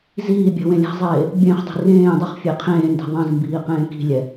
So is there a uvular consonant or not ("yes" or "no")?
yes